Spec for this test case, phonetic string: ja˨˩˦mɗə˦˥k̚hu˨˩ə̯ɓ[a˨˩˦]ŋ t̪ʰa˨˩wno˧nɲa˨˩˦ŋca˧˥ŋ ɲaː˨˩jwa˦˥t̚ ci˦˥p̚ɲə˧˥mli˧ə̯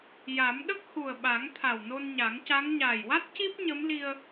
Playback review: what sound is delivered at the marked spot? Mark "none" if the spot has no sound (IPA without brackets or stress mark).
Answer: a˨˩˦